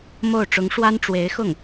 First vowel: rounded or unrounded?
rounded